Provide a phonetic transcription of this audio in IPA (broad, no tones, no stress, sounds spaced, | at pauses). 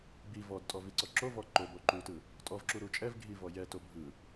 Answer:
b i v ɔ d tʼ ɔ v i ǀ ɔ ǁ o v ɔ ǃ o b o ǃ u t ɯ | tʼ ɔ v ǁ u ɾ u t͡ʃʼ ɛ v ɡʱ i v ɔ j ɛ t o bʱ ɯ